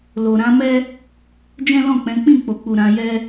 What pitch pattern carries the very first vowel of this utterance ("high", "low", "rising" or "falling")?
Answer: low